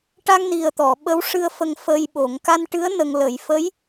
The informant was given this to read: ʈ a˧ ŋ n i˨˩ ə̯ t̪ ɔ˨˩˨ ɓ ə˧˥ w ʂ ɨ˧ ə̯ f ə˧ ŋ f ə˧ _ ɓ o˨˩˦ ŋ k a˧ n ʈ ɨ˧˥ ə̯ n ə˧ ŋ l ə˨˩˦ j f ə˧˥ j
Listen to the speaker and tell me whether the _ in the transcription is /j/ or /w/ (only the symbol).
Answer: j